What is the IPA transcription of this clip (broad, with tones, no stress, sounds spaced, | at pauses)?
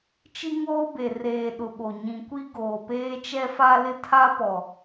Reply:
t͡ʃ i˦ ŋ oː˦ b e˨ r eː˨ ɗ ʊ˨ ɓ o˨ ɲ ĩ˨ kʷ i˦ ɡ oː˨ p eː˦ t͡ʃ ɛ˦ f a˦ l ɪ˦ tʰ a˦ p ɔ˨